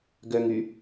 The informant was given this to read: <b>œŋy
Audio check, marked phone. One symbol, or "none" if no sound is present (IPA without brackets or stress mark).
ɡ